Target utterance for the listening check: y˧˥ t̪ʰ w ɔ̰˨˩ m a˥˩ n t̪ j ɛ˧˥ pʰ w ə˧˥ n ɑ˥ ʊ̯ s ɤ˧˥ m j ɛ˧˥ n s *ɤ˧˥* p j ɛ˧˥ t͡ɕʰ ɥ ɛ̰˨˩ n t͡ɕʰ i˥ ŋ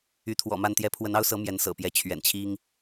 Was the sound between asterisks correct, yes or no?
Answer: no